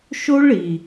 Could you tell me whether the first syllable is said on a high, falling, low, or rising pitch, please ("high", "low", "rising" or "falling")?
high